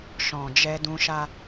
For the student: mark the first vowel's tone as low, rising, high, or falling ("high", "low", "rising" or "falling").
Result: low